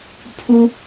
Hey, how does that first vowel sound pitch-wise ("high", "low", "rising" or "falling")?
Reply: high